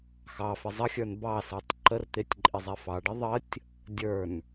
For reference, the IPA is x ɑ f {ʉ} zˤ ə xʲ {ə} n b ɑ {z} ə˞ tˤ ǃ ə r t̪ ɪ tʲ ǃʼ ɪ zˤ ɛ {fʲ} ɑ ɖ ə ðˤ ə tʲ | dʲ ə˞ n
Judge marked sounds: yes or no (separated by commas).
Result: no, no, no, no